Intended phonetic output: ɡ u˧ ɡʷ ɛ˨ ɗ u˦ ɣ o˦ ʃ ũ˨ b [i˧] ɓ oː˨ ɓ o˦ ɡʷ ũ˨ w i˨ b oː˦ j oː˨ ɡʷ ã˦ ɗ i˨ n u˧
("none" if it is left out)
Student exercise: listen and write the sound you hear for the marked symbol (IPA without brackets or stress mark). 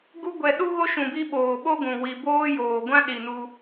i˧